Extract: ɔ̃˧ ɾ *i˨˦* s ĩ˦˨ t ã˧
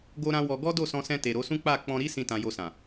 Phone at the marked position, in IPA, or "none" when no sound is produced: i˦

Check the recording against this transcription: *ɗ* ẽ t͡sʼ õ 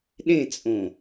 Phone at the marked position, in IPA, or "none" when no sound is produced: ɗ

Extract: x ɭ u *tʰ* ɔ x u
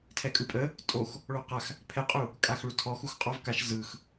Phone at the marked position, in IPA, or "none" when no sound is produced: tʰ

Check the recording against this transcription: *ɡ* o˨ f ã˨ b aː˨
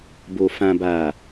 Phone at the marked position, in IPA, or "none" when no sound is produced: b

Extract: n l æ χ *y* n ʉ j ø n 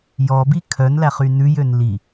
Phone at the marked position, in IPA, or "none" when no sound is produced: y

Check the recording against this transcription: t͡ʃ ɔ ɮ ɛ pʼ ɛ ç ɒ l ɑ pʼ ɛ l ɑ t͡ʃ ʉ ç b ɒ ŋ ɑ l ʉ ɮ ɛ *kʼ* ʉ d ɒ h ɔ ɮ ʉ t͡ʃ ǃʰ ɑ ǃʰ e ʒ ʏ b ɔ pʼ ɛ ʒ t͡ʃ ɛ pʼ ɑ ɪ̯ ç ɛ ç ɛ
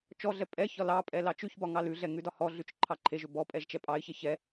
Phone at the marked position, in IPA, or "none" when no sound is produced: ŋ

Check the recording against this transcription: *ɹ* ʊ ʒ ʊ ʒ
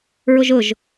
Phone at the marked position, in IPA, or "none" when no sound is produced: ɹ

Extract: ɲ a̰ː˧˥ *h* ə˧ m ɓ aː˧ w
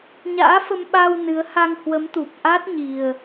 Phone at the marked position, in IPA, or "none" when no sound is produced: f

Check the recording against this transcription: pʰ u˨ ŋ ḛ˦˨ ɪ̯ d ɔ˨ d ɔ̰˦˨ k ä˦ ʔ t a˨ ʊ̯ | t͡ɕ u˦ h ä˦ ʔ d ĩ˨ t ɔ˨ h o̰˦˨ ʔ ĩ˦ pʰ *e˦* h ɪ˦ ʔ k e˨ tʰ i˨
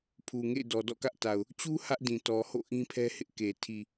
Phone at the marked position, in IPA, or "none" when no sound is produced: ɛ˦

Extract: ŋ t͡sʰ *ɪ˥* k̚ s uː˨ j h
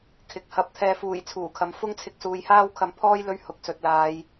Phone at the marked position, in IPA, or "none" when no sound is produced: ɪ˧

